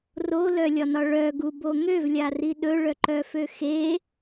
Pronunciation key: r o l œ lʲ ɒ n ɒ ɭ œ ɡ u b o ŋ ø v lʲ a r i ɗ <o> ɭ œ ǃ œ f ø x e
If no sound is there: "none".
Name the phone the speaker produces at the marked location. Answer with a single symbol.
ɵ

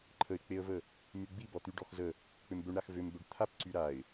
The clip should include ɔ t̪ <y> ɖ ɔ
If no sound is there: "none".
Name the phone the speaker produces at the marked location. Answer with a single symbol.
y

